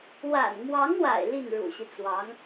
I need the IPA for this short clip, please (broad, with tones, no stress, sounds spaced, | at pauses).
w a̰˨˩ n m w ɑ˧˥ ŋ w a̰˨˩ ɪ̯ l i˥˩ n ɻ ṵ˨˩ ɕ i˦ t͡s w ɑ˧˥ ŋ